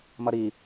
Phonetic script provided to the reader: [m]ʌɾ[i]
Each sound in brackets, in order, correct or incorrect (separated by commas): correct, correct